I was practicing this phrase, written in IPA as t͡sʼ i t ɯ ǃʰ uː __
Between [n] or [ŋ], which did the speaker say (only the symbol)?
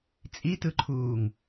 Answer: ŋ